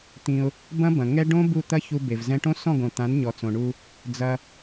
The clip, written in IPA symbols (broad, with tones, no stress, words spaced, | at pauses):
t̪ĩ˧ʊ̯ | bɐ̃˦bɐ̃˨ŋɛ˦ɖõ˦ bu˦˨t̪ɐ˦çu˧ be˨v zɛ̃˧ʈõ˦ sɔ̃˦˨ɡõ˨t̪ã˨˦n ɲɔ˨t͡sõ˨ɳu˧ | d͡zɐ˧